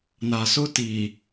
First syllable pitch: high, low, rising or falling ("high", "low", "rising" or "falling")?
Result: low